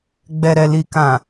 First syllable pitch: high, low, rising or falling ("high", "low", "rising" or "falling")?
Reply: low